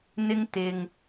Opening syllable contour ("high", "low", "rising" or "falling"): high